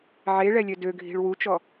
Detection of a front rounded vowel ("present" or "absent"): present